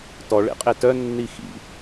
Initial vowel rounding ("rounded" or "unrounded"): rounded